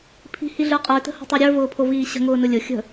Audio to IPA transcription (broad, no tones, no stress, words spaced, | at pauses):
pʰi̤hiɮə˞ qʼə˞tə̤ho̤tˤə˞ ɾʲə˞vʊːpʰoviː ɕə̤ŋʊːnʊ lʲʊ xʲə̤